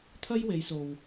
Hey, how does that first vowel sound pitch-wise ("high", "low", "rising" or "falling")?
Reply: high